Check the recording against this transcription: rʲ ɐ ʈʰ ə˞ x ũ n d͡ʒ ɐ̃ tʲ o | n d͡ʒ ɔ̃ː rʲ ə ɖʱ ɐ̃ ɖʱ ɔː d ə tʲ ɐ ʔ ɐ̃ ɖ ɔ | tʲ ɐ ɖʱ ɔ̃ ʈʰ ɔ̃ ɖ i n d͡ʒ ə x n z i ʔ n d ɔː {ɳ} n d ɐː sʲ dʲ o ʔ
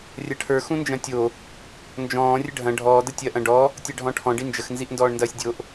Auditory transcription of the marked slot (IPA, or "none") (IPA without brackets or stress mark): ɳ